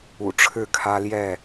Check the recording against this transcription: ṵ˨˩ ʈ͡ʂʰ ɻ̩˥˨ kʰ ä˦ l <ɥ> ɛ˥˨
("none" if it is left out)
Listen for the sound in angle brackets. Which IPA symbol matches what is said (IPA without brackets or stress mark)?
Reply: j